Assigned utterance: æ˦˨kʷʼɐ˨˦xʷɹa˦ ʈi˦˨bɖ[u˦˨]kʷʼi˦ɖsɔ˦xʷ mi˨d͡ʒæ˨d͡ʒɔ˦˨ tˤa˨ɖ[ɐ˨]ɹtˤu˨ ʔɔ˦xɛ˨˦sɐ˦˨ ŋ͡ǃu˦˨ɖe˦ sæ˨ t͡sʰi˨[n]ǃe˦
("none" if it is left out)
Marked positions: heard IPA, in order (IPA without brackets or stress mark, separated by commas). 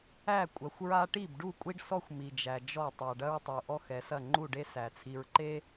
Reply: u˦˨, ɐ˦, ɹ